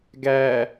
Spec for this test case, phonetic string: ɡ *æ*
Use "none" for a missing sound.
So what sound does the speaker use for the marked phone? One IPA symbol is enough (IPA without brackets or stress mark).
æ